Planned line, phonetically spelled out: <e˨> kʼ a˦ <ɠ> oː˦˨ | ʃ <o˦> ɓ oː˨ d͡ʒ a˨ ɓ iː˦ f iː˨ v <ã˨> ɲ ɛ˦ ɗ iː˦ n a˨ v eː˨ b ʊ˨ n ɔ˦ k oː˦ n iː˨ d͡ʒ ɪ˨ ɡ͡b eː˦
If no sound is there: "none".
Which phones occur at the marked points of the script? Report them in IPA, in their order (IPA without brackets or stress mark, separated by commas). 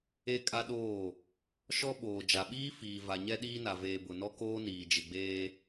e˦, ɗ, ɔ˦, a˨